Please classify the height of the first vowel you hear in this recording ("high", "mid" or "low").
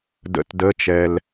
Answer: mid